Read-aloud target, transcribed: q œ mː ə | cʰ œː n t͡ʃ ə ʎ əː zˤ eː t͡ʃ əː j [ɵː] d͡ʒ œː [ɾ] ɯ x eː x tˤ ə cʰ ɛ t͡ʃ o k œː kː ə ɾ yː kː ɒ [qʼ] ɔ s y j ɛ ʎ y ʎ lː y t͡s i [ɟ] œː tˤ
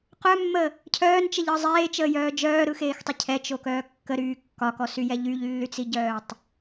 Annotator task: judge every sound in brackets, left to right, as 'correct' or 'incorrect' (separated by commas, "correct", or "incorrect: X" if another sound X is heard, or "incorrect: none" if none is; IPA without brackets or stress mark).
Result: incorrect: œː, correct, incorrect: k, correct